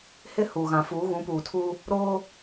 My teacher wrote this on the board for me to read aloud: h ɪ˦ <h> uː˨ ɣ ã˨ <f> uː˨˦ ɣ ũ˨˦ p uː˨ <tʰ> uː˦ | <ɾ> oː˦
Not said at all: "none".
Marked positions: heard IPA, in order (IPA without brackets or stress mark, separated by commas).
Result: h, f, tʰ, ɾ